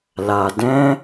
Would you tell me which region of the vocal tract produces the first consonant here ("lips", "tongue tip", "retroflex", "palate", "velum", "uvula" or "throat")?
tongue tip